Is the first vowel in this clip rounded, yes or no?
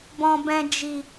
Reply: yes